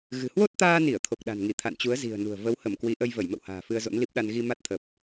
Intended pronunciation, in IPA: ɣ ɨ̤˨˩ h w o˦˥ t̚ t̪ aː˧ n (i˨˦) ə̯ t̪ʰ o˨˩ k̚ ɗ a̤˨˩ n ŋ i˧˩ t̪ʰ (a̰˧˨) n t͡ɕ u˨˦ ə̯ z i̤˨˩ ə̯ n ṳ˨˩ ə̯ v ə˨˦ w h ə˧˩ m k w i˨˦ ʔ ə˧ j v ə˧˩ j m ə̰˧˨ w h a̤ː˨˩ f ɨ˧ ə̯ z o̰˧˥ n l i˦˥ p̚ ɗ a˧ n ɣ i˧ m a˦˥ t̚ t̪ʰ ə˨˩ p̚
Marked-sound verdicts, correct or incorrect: incorrect: i˧˩, correct

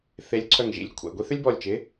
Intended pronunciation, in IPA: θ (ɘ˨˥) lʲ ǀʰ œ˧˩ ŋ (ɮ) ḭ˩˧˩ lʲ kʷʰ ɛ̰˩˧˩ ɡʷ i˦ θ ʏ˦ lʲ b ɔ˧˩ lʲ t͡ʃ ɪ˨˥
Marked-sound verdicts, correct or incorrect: incorrect: e˨˥, incorrect: ʒ

